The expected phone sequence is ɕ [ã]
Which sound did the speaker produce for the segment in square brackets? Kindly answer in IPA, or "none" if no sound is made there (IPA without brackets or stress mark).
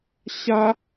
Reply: a